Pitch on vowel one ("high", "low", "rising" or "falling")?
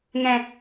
low